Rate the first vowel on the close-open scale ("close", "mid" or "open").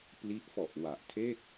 close